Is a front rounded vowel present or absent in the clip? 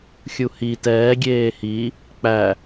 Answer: absent